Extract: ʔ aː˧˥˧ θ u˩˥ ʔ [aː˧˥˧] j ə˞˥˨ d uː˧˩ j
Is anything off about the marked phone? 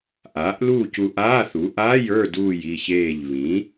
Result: no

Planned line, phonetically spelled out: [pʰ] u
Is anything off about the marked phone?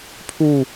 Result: no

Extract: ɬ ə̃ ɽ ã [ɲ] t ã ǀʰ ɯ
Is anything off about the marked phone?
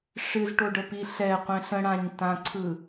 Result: no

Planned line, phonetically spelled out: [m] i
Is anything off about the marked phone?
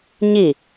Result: yes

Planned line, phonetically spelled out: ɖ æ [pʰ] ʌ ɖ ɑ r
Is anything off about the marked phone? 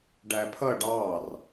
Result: no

